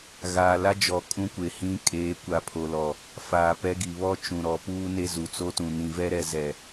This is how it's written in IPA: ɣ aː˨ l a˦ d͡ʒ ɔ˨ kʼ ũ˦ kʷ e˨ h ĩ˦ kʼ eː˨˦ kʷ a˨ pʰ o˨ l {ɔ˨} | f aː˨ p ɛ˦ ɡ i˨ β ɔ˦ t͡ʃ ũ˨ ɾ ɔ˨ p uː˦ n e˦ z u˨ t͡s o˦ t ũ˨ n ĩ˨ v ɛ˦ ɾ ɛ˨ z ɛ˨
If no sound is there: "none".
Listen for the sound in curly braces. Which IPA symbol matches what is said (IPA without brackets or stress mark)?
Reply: ɔ˨